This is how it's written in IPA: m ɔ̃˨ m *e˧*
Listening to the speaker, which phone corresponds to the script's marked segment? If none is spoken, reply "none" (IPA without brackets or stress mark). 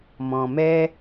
ɛ˧